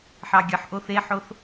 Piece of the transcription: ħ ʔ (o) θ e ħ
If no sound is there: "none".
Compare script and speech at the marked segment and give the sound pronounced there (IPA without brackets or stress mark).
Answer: o